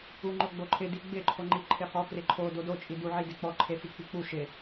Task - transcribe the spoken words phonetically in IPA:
u ŋ͡ǃ o ɡ͡b o ǃʰ ɪ d i ɡ͡b ɪ ǃʰ o ŋ͡ǃ i ǃʰ ɪ χ ɔ k r ɪ ǃʰ o d o d o t͡ʃʼ i d u ʕ i d e k͡p ɔ ǃʰ e f i k͡p i k͡p u ʃ ɪ

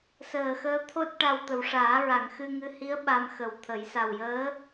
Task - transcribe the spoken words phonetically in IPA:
s əː˨˩ x əː˧ t̪ʰ o˦˥ t̚ ʈ a˧ w t̪ ə˨˩˨ w ʂ aː˨˩˦ ɹ a˨˩˨ ŋ x ɨ˧ ŋ ɨ˧ h i˧˥ ə̯ ɓ a˧ m x ə˨˩ w t̪ʰ ə˨˩˦ j s a˨˩ w j əː˧˥

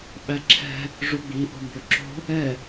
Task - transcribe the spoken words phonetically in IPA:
ɓ æ ǁʰ ɛ̤ | ʐ u ɡ͡b i ʔ o̤ m b ɵ ǁ o̤ | ɛ

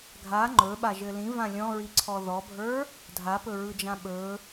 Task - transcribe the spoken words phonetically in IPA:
ɡʱ a ŋ͡ǃ ɵ ɓ a ʒ ɘ l ĩ v ã lʲ ɔ̃ ɹ i ǀʰ ɔ ð ɔ bʱ ə˞ | dʱ a p ɵ ɹ ɯ d͡ʒ ã ɓ ɵ

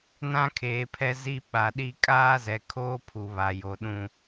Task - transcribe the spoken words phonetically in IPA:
n ã˦ kʰ eː˨ pʰ ɛ˦ z i˦ ɓ a˨ ɗ i˦ kʼ aː˦ z ɛ˨ kʰ oː˦ pʰ u˨ β a˨ j o˨ ɗ ũ˦

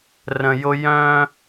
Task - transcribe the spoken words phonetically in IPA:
r ə̃˨ j ʊ˧ j œ̃˦

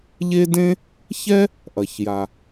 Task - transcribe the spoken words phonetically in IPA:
ʎ e˥ d ẽ˥ | ç ɛ˥ | ʔ ɐ˩ ç j a˩

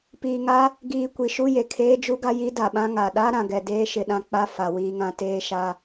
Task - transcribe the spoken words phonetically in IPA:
p iː˨ ŋ a˦ | ɡ iː˨ kʷ i˨ ʃ u˦ j e˨ kʰ eː˦ d͡ʒ u˦ ɡ a˦ j i˦ d a˨ ɓ ã˦ ŋ a˨ ɗ a˦ ɾ ã˨ ɡ ɛ˨ d eː˦ ʃ ɪ˨ ɗ ã˦ k͡p a˦ f a˨ w iː˦ ŋ ã˦ t eː˦ ʃ a˦

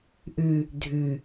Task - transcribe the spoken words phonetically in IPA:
ʔ ʉ | dʱ ʉ

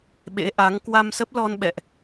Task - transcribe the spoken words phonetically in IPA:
ɓ ḛ˧˥ ʔ a˨˦ ŋ k w a˧ m s ə˦˥ p̚ l ɔ˧ n ɓ ɛ̰˧˨ ʔ

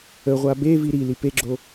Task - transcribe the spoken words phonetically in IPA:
ə ʁʷ a b e v i ɾ i l i p e ɡ͡ǁ o

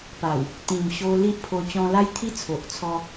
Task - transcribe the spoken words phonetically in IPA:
p a˨˩ w | t̪ ĩ˨˩ m ɕ o˧ l i˦ ʔ pʰ o˧ t͡ɕ ɔ̃˧ l a˦ j t̪ʰ i˦ t͡sʰ o˨ ʔ t͡sʰ ɔ˧

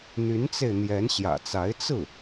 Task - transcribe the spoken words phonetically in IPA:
n̪ y˧˥ n t͡s e˧ ɪ̯ n̪ j ɛ˧˥ n ɕ j ä̰˨˩ t͡s a˧˥ ɪ̯ t͡s ɹ̩˥˩

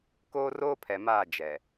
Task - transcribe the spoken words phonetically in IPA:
k oː˦ r oː˦ pʰ ɛ˨ m aː˦˨ d͡ʒ ɛ˨

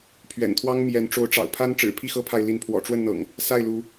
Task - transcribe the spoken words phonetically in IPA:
pʰ ɥ ɛ̰˨˩ n t̪ʰ w ɑ˦ ŋ m j ɛ˨˦ n ʈ͡ʂ o˨˦ ʊ̯ ʈ͡ʂ ɑ̰˨˩ ʊ̯ pʰ a˦ n ʈ͡ʂ ɻ̩˨˩ pʰ i˥˨ x ɤ˦ pʰ a˨ ɪ̯ l i˨˦ n pʰ w ɔ̰˨˩ ʈ͡ʂ w ə˥˨ n n̪ ɤ̰˨˩ ŋ | s a˥˨ ɪ̯ l u˨˦

